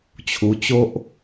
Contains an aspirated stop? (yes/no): yes